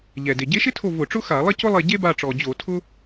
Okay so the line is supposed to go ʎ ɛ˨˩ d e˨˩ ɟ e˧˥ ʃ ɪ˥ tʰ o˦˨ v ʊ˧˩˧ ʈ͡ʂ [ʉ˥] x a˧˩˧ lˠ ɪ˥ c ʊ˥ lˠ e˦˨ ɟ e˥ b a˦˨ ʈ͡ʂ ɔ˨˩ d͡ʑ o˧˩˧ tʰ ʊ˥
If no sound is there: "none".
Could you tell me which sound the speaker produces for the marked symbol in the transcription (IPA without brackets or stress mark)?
ʊ˥